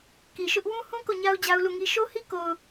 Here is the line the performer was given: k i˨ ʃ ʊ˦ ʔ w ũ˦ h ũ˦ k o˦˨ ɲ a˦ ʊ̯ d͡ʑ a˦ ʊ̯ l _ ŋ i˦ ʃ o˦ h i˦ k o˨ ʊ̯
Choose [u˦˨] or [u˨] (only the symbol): u˦˨